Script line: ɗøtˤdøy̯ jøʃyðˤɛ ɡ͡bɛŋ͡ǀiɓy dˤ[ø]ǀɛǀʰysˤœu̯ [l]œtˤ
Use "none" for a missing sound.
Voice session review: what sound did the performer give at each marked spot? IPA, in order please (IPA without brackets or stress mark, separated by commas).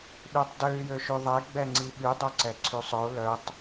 œ, l